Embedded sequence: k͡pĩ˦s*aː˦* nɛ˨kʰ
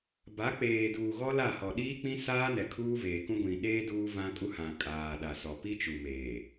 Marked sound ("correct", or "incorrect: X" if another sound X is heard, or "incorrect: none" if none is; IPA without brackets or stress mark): correct